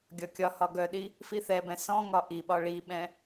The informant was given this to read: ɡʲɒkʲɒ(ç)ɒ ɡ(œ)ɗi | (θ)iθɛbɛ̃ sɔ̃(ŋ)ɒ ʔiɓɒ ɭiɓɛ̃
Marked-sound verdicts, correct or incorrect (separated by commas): incorrect, correct, incorrect, correct